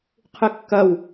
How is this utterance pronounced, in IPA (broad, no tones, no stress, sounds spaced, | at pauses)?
qʰ ɨ kː ɐ w